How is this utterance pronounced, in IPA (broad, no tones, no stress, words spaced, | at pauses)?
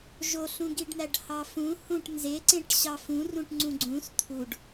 ʒoɬũɡiɖn̪æɖ hɑfũ hũʈ nzeǀẽʈ ɕɑfũrũʈŋ͡ǀũ ɡ͡ǀũs t̪ʰuɖ